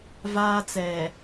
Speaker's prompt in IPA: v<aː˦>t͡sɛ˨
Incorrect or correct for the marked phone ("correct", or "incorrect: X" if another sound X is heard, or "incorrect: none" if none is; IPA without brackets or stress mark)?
correct